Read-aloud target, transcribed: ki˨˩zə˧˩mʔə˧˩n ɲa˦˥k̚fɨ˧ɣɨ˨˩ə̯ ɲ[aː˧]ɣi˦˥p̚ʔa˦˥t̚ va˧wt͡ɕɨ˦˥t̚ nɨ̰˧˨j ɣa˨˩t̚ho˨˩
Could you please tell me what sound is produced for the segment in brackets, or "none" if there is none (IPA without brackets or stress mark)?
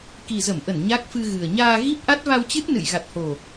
aː˧